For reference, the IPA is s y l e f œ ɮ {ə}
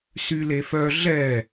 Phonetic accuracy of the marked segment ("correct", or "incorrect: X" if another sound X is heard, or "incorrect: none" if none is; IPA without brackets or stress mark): incorrect: ɛ